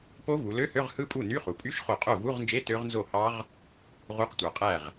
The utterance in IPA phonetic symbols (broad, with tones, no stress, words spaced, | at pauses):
po˦˥vu˩˧lø˧˥˧hø˧˥˧ʁ hɯ˦˥pʼu˥˩ny˧˥˧ χu˩˧pʼy˧˥˧ʃχo˧˩ qʼo˥˩ vu˧˥˧ʁnd͡ʒe˧˥˧ tø˦˥ʁnzo˥˩hɑ˦˥ʁ | ʁu˧˥˧qtʷɑ˩˧ qʼæ˥˩ʁ